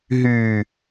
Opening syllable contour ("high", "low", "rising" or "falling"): low